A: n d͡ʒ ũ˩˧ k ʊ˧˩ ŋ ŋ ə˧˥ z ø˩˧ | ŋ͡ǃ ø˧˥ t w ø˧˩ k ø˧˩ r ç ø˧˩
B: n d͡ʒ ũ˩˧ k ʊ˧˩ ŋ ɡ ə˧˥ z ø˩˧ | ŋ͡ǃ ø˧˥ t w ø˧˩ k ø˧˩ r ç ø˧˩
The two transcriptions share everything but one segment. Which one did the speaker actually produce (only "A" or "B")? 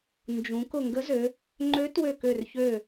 B